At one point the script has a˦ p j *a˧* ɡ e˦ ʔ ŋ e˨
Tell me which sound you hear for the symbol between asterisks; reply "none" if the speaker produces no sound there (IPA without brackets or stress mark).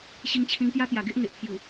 a˨˩